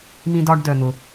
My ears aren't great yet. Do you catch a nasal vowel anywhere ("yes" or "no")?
yes